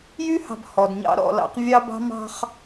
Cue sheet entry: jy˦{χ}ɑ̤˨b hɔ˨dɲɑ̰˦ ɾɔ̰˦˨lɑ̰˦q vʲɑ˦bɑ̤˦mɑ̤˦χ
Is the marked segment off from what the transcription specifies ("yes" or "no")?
yes